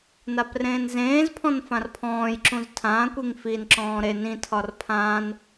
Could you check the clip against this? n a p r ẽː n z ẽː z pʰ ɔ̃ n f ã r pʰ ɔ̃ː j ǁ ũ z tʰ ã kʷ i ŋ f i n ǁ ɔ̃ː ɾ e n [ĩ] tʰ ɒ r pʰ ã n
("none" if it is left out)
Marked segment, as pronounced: ĩ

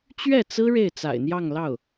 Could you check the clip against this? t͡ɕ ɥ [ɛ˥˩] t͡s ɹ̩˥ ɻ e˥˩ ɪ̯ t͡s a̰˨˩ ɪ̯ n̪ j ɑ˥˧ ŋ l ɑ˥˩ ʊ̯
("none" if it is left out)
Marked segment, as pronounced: ɛ˥˩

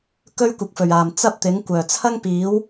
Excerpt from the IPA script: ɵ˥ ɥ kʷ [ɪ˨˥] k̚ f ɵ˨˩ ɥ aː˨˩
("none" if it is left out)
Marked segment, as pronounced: ɪ˨˥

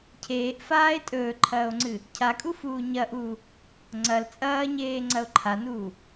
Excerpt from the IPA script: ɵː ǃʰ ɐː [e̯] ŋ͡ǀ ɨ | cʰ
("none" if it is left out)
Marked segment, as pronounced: o̯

